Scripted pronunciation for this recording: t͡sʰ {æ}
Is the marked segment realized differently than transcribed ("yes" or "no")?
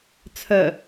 yes